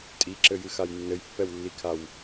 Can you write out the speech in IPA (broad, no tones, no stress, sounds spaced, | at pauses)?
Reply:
tʼ i ǁ ɘ j ɨ x a j nː ɘ j pː ɛ w lː i kʰ a w